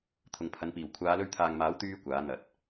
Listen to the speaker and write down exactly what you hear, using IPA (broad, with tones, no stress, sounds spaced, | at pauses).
t̪ʰ ʊ˨ ŋ pʰ ɐ˨˥ n p iː˨˩ w kʷʰ aː˨˧ l ɵ˧ ɥ t̪ʰ aː˨ ŋ m aː˨˥ w t̪ yː˥ kʷ aː˨˥ n̪ ɐ˨˥ t̚